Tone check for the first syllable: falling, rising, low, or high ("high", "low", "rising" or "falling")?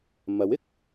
rising